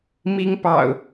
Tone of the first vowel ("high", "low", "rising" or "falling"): high